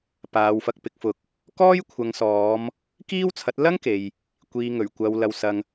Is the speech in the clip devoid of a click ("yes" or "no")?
yes